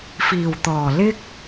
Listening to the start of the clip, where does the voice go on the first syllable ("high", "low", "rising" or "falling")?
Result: low